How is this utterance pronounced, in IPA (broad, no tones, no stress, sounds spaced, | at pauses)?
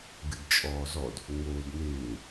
ɡ ɨ d t͡ʃʼ ɔː z ɔ d | ŋ͡m oː d n̪ ɪː